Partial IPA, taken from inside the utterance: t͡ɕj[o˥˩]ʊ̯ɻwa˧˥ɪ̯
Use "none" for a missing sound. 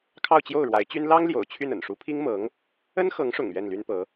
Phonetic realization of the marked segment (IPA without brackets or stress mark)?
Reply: o˥˩